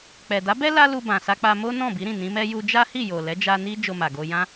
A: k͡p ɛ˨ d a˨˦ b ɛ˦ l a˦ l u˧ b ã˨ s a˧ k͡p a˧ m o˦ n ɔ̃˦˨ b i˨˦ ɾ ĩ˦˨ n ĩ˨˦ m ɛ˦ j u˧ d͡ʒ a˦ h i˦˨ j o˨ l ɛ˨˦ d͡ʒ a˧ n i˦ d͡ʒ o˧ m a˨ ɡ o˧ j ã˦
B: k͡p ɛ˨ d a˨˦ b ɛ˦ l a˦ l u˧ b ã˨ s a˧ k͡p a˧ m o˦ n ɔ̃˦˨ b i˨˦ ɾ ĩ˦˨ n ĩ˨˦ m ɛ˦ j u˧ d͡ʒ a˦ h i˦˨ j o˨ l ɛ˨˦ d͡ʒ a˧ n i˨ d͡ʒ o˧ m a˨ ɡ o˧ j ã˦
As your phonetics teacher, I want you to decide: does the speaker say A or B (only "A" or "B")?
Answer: A